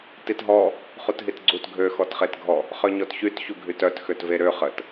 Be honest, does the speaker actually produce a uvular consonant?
yes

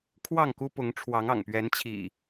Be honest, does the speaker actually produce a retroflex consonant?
yes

